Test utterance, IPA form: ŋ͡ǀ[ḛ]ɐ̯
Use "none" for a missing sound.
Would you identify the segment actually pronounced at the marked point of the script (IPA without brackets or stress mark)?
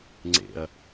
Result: ḛ